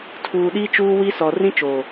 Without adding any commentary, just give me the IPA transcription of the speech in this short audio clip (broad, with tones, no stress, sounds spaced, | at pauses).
tʰ uː˨ ɗ iː˦ t͡ʃ uː˦ w i˦ s ɔ˨ r ĩ˦ t͡ʃ oː˨